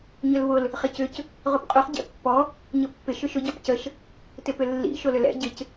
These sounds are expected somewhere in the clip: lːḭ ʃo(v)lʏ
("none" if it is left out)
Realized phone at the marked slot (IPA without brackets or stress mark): none